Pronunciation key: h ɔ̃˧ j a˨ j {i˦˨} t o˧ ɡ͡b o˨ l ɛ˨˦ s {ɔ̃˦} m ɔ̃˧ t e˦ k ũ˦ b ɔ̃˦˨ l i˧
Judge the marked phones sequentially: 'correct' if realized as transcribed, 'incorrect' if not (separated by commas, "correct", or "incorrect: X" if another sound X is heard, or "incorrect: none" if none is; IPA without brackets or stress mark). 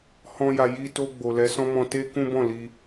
incorrect: i˧, correct